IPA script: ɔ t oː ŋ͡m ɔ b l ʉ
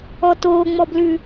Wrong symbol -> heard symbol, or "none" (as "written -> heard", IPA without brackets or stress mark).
none